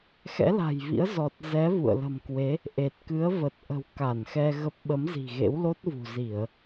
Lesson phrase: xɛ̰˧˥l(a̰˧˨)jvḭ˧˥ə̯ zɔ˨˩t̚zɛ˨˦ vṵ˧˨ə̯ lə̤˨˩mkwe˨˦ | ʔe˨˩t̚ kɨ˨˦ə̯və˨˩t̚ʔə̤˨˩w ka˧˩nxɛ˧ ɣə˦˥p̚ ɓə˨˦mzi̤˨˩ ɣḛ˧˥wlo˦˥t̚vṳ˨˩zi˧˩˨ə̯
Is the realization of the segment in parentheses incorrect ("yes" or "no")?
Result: yes